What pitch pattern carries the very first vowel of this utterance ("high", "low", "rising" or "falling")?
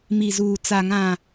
low